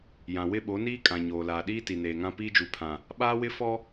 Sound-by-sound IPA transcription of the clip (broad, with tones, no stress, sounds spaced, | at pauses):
j ã˨ w ɪ˦ ɓ o˨˦ n iː˦ kʼ ã˨ ɲ oː˨ l aː˨ ɗ iː˦ t i˨ n eː˨ ŋ ã˦ p iː˦ d͡ʒ u˨ pʰ ã˨ | ɓ aː˦ w ɪ˦ f ɔ˦